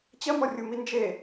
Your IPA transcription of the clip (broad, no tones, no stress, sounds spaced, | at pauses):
t͡ɕ ɐ m ɔ rʲ u m i n d͡ʒ e